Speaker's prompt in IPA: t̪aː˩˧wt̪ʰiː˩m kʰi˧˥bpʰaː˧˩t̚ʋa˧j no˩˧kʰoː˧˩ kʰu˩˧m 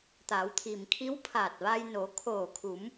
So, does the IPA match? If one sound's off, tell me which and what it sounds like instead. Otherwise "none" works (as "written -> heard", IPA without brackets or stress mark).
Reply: b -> w